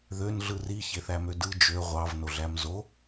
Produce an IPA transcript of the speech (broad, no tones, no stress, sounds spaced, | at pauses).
ð ø n ɮ ɯ r i ç e θ æ m ø d ɯ d͡ʒ ø ʁʷ ɑ v n o ɮ æ m z o